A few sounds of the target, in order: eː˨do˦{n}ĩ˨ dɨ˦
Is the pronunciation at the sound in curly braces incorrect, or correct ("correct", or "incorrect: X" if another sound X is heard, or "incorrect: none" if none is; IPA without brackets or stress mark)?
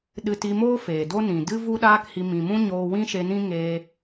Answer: correct